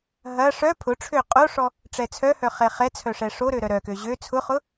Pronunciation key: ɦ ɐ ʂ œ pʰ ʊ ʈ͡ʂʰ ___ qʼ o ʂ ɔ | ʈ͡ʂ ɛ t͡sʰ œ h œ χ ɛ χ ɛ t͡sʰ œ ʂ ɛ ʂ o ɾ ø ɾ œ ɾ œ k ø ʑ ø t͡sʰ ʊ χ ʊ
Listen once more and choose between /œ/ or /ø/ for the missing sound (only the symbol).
ø